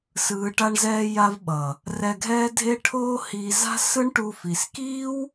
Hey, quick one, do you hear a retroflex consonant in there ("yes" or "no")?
yes